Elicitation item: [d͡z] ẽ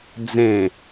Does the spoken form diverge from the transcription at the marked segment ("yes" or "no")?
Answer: no